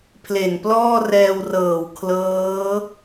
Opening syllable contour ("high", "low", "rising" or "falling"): low